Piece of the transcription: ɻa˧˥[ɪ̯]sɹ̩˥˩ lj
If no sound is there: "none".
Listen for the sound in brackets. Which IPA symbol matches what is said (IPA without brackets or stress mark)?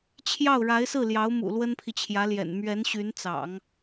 ɪ̯